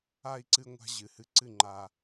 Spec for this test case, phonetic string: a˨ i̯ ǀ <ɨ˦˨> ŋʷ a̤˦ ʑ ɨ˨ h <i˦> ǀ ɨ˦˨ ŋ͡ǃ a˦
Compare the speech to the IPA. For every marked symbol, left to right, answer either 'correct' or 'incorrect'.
incorrect, incorrect

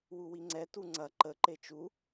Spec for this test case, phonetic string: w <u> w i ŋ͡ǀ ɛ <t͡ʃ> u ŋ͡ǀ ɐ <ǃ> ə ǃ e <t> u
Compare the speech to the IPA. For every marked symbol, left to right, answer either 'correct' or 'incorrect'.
correct, incorrect, correct, incorrect

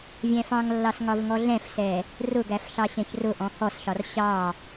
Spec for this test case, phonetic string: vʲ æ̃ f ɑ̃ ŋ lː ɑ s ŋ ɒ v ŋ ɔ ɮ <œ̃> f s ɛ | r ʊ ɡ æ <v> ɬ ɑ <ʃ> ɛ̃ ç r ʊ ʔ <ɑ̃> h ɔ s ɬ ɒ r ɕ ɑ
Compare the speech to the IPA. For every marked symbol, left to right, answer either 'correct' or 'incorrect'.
incorrect, incorrect, incorrect, incorrect

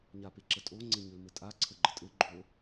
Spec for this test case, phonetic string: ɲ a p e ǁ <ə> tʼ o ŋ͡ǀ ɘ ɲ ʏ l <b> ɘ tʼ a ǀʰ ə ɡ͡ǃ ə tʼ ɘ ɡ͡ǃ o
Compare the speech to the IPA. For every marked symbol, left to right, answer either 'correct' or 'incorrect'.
correct, incorrect

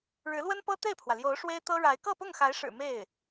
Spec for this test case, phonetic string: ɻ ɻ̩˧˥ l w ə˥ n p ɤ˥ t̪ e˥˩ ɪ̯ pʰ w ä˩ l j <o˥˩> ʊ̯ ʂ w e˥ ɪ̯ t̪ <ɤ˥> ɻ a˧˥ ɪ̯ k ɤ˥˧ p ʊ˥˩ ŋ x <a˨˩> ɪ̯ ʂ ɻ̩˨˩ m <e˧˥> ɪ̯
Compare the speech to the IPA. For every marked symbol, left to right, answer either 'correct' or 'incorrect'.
incorrect, correct, incorrect, incorrect

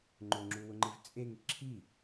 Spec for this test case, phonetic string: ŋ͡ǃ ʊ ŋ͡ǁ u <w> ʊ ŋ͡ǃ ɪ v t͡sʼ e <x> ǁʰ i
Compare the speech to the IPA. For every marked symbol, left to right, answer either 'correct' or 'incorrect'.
correct, incorrect

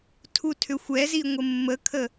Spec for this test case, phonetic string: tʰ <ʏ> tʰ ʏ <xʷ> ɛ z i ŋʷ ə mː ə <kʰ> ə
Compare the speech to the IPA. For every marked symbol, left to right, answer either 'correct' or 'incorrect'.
incorrect, correct, correct

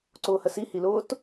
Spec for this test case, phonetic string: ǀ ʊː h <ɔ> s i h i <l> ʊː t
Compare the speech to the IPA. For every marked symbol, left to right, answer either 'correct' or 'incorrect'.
incorrect, correct

